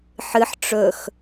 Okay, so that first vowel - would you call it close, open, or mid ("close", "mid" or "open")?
close